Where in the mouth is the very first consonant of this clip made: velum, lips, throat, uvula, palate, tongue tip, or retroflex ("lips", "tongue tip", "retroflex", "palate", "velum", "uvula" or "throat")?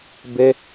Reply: lips